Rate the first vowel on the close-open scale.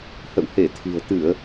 mid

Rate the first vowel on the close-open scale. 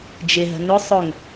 close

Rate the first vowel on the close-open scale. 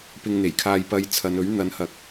close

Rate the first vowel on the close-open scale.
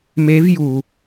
mid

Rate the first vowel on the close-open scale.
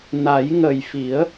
open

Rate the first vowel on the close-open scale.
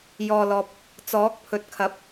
mid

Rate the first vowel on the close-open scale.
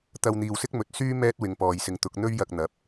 open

